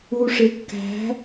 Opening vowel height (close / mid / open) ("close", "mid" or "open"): close